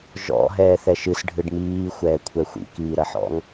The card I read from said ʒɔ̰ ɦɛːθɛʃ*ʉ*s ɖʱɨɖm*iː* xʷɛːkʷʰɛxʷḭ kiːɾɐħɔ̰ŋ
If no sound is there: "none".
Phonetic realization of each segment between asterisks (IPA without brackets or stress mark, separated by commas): ɨ, iː